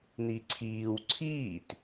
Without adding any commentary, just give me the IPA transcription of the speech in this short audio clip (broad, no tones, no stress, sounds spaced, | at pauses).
n̪ i ǀʰ iː w ǀʰ iː t